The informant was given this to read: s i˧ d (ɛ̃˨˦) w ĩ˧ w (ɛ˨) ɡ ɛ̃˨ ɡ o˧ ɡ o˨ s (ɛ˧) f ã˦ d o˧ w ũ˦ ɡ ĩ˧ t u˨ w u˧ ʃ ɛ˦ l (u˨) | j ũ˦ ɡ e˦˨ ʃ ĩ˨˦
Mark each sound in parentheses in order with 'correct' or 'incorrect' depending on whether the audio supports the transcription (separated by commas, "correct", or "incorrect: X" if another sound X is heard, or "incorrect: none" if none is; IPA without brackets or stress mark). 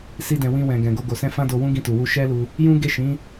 incorrect: ɛ̃˨, incorrect: ɛ̃˨, incorrect: ɛ̃˧, incorrect: u˧